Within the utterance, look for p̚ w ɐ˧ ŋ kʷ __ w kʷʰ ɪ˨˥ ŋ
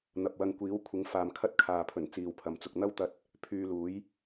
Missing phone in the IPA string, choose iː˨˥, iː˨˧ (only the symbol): iː˨˥